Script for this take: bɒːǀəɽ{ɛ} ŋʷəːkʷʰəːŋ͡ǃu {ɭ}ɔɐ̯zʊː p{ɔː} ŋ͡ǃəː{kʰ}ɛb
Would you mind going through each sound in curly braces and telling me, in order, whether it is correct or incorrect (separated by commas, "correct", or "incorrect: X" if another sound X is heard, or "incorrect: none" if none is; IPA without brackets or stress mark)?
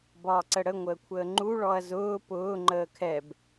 incorrect: ə, correct, incorrect: ʊː, correct